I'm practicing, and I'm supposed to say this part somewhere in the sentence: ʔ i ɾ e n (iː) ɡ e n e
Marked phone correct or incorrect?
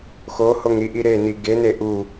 incorrect